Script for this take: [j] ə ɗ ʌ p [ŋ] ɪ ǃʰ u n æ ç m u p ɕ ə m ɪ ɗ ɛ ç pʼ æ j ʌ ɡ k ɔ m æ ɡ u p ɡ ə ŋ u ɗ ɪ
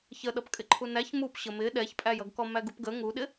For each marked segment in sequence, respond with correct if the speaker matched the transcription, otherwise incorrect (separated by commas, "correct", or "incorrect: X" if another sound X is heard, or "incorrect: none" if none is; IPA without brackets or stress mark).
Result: incorrect: ç, incorrect: kʼ